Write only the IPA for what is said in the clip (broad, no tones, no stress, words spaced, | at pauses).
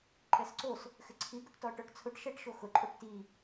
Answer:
ǃɛsǀos | xɪǀʰiɡʊʈtɔ ʈɔʈt͡sʰʊʈʃɛʈ ʃoxʊǃʼoʈ ti